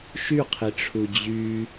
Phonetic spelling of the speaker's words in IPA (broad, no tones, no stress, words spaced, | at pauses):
ʃyqʰiʈ͡ʂʰu d͡ʑy